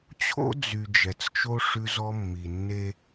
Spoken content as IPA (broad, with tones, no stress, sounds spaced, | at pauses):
t͡ɕʰ o̰˦ d͡z y˨ d͡ʒ ɛ˨ t͡s t͡ʃ o˦ ʂ ʉ˦ z ɔ˦ mː i˨ nː e˦